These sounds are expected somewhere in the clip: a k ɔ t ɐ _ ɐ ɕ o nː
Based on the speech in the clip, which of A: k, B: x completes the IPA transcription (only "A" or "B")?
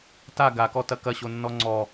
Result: A